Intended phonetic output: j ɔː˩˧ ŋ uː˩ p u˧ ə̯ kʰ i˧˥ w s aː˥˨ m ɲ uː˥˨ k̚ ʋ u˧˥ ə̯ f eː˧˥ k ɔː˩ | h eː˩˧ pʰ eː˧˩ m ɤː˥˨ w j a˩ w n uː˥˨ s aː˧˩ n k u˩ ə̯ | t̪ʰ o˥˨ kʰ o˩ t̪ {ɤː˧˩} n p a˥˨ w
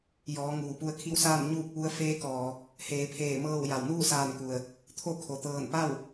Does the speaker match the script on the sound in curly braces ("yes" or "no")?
yes